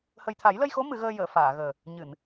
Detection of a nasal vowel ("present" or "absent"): absent